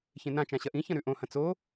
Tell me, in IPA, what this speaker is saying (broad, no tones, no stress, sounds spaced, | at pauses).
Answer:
ç ẽ n ã t͡ʃ ã ɕ ɐ ʔ ĩ ç ɐ̃ ɾ ʉ ʔ õ h ɐ̃ t͡s o